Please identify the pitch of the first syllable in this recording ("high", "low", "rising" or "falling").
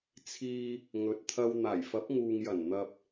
low